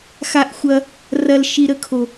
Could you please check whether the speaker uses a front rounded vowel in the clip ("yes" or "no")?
no